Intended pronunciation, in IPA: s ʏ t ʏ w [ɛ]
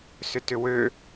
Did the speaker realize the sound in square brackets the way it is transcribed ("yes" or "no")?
no